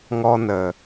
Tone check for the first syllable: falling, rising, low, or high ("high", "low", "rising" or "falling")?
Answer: high